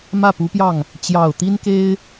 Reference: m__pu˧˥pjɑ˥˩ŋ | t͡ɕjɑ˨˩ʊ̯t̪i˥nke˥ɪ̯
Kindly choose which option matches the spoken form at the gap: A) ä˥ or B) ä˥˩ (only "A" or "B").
B